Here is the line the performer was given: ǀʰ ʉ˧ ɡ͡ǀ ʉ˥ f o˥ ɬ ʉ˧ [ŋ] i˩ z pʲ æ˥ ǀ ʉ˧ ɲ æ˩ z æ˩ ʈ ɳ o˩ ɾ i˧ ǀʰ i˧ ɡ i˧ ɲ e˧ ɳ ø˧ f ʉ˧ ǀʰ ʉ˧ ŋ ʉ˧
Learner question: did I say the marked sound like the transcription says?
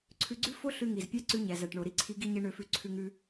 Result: yes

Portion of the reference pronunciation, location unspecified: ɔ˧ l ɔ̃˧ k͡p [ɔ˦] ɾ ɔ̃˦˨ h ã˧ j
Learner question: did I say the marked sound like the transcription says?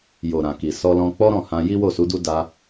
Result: yes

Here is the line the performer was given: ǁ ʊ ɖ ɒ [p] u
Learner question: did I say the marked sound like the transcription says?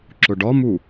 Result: no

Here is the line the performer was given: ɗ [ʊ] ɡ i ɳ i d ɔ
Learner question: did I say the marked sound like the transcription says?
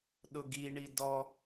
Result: yes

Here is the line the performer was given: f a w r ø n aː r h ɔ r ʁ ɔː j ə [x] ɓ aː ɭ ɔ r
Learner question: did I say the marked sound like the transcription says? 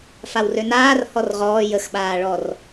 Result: yes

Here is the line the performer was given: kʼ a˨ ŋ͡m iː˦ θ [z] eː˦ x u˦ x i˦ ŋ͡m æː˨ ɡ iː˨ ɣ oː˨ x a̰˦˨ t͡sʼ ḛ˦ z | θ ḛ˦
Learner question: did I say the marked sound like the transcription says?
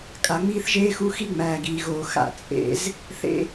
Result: no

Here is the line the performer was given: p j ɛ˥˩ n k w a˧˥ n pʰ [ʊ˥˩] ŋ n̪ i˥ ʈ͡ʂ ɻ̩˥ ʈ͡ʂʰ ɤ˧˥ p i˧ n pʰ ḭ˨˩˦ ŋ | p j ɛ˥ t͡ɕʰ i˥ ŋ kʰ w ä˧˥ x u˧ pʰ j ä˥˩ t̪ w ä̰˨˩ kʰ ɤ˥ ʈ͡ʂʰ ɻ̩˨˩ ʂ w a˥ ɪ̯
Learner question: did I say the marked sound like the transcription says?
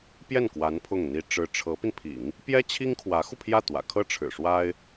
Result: yes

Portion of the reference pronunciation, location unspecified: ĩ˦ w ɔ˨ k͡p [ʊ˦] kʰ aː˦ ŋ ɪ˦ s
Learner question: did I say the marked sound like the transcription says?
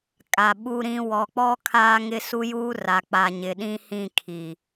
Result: no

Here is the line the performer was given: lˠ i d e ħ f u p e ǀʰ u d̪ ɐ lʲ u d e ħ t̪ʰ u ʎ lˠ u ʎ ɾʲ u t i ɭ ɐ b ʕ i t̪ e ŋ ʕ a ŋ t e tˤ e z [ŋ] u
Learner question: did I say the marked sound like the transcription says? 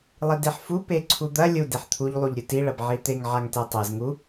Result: yes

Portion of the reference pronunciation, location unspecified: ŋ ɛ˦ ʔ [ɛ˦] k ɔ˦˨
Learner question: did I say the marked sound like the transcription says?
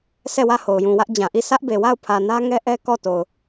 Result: yes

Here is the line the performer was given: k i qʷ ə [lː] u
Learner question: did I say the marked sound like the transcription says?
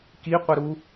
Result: no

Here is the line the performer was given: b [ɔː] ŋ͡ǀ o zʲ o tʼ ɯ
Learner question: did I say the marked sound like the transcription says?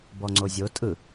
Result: no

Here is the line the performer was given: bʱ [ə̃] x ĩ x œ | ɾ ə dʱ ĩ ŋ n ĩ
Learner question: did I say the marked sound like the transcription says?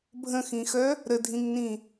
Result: yes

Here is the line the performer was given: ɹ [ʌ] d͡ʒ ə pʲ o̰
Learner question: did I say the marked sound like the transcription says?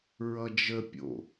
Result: yes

